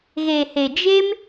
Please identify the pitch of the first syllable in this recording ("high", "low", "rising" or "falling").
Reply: low